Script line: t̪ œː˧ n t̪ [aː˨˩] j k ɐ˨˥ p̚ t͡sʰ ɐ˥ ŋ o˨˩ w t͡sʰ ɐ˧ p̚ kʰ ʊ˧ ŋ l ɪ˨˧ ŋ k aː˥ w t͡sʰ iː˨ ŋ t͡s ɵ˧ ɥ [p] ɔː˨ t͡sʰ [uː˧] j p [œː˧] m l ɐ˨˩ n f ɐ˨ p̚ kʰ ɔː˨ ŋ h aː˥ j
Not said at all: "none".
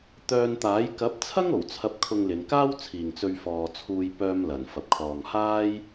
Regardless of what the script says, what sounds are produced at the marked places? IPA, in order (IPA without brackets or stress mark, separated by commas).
aː˨˥, f, uː˧, œː˧